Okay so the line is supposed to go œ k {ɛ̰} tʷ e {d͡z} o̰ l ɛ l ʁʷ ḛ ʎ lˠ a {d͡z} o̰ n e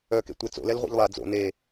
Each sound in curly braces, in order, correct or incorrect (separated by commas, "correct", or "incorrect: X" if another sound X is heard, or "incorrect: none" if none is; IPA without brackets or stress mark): incorrect: ḛ, incorrect: t͡s, correct